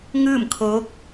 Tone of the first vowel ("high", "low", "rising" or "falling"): falling